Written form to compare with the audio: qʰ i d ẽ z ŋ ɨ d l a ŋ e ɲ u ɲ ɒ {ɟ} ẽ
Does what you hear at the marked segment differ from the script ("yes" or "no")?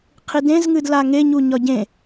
no